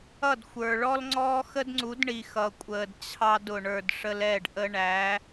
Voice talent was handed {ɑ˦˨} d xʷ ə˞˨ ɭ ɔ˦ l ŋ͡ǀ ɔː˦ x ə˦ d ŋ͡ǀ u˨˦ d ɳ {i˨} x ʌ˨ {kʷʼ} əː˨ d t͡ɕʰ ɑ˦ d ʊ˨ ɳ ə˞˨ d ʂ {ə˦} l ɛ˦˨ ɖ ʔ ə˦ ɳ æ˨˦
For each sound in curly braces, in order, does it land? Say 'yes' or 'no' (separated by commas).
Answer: no, yes, yes, yes